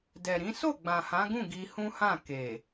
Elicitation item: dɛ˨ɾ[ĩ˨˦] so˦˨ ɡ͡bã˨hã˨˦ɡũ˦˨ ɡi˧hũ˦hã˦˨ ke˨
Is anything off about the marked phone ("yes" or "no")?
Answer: no